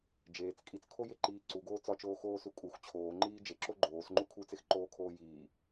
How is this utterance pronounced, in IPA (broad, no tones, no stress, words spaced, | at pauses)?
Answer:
d͡ʒeːt͡s kʼit͡skʰojeǃiː ǀuɡoː t͡sɒt͡ʃoːxoːsu kʼux t͡ɕʰoːŋ͡ǃiː d͡ʒeǁo ɡ͡ǃoːsŋ͡ǃu kʰut͡sexǃoːkʰoː jiː